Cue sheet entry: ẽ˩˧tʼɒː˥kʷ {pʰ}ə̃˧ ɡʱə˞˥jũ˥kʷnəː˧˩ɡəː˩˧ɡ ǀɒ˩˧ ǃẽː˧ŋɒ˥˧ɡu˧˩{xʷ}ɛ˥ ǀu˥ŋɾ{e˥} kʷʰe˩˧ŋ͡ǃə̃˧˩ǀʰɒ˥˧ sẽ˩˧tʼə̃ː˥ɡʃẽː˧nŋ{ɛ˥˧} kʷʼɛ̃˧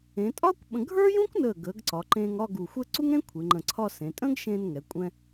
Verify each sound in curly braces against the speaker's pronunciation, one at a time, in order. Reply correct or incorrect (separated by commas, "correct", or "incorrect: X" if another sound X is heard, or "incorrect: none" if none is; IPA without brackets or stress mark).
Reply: incorrect: ɓ, correct, incorrect: ẽ˥, incorrect: ɛ˩˧